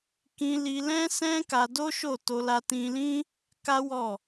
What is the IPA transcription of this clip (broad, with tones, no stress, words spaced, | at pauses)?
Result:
kĩ˧li˧ lɛ̃˦ sɛ̃˦ka˧do˦ ʃo˦˨to˧ la˧tĩ˧lĩ˦ | ka˦wɔ˦˨